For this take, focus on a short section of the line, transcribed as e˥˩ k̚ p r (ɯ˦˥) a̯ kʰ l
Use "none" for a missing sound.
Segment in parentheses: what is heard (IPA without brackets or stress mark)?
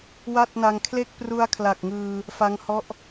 u˦˥